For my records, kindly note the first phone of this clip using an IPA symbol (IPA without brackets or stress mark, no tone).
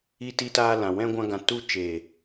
i